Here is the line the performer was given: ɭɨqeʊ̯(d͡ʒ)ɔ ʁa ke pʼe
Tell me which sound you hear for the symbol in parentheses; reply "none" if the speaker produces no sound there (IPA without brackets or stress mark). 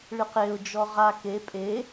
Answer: d͡ʒ